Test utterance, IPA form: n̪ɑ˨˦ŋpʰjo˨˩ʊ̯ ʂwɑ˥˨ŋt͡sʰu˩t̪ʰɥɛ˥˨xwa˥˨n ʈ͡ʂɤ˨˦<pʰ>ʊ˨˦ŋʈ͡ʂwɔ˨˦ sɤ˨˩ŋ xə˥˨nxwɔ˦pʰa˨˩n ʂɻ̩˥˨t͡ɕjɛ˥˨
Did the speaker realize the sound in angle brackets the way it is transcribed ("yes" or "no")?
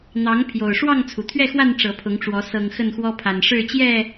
yes